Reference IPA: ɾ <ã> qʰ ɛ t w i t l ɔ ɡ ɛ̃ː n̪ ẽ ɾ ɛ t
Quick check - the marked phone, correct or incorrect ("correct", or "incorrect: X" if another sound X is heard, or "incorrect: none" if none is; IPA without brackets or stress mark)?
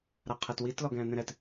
incorrect: a